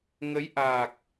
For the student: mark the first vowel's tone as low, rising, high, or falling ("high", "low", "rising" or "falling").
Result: rising